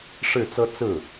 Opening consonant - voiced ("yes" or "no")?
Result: no